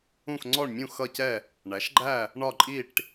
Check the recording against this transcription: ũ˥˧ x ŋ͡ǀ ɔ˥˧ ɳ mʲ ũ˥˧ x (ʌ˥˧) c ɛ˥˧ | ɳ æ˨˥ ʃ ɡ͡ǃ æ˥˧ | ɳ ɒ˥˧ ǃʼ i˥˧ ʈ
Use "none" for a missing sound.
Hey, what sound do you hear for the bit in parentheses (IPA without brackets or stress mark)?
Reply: ʌ˥˧